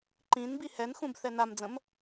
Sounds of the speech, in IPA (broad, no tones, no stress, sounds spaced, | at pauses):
ǃ ĩ n b i h ɛ n x ũ b θ ɛ n a m d͡z ə̃ m